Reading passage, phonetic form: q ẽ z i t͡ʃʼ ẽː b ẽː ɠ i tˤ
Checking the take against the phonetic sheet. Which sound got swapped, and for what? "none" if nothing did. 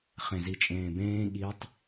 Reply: q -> χ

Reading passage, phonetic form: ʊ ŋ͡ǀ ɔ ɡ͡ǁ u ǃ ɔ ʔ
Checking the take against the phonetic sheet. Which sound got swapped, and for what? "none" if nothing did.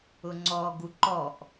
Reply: ɡ͡ǁ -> ɡ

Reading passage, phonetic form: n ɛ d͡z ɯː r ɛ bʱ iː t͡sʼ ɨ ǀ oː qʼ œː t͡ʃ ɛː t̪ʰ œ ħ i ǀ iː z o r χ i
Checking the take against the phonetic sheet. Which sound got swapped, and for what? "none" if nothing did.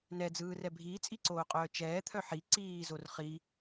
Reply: ɨ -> i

